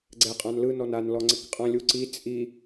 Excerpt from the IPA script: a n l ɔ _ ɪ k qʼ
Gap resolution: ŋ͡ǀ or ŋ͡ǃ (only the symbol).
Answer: ŋ͡ǀ